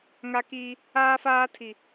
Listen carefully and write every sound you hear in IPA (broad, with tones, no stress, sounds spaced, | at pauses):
ŋ a˦ k iː˦ | aː˦ f aː˦ tʰ i˨